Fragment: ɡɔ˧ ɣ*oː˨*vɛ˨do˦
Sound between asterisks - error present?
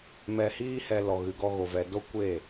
yes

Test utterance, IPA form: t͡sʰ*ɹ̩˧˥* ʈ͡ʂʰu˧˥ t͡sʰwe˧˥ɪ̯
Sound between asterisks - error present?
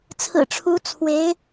yes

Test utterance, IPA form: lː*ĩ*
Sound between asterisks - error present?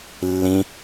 no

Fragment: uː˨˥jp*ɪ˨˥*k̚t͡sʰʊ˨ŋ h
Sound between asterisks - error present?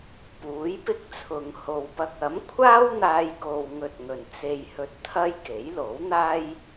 yes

